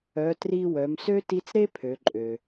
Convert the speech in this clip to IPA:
œ˩˧ t r i˧ w œ˩˧ m s ø˥ t i˧˥ t͡s ɾ e˥ pʰ ø˩˧ ǃʼ ø˩

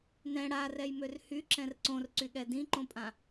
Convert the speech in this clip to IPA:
n ɛ̃ ɽ a r ɛ j m ø r h y ǁ ɛ̃ r ǀ õ r ǀ y ɠ ɛ d ĩ ǃ õ pʼ ã

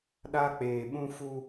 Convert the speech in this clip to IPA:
ɗ a˦ k͡p eː˨ ɓ ũ˦ f u˦

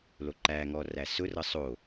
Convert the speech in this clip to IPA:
l o ǃ æ ŋ ɔ r æ s ʊ r ɤ sˤ o

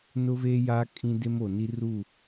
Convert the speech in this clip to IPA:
n ʊ˦ v eː˦ j aː˦ kʼ ĩ˦ d e˦ m o˨ n i˦ r u˦˨

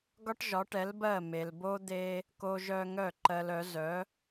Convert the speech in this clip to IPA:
ɡ ɒ˥ ʈ ʒ ɒ˩˥ ʈ ɛ˩˥ l b ɜ˥˩ m e˩ l b o˥ d̪ e˥ | k o˧ ʒ œ˧ ŋ œ˥˩ ǃ ɜ˧ l œ˩˥ z œ˩˥

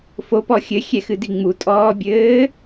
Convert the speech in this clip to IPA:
f o p ɔ xʲ ɘ xʲ ɛ x ɨ d i ŋ͡m u tʼ ɔː bʲ ɘː

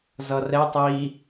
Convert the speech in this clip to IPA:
z ʌ r ɛ tˤ i

